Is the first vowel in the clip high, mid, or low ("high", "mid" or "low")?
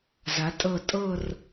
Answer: low